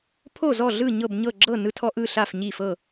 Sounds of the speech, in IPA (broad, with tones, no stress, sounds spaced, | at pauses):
pʰ o˥˨ z ɔ˥˨ ɮ ɯ˥˨ ɲ ɤ˥˨ b ɲ ɤ˥˨ ɡ͡ǁ ɤ˥˨ n ɯ˦ tʰ ɔ˦ ʔ ɯ˥˨ ɬ a˥˨ f ɲ i˥˨ f ɤ˥˨